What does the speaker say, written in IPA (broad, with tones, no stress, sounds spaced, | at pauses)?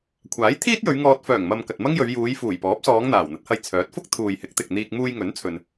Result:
kʷʰ aː˨˥ j t̪ʰ iː˥ t̚ j ɵ˨˧ ɥ ŋ ɔː˧ t̚ f œː˨˩ ŋ m ɐ˨ m k ɐ˨ t̚ m ɐ˥ ŋ j ɵ˨˧ ɥ j uː˨˧ j f uː˨˩ j p ɔː˨˥ p̚ s ɔː˨˧ ŋ n̪ aː˨˩ w n̪ ɐ˨˥ t̚ h ɐ˧ j t͡sʰ œː˨˥ t̚ f ʊ˥ k̚ t̪ʰ uː˨ j h ɪ˨˥ k̚ t̪ ɪ˨ k̚ n̪ iː˧ k̚ m uː˧ j ŋ ɵ˨˥ n t͡sʰ ɵ˧ n